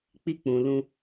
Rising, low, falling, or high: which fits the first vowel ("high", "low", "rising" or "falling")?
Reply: high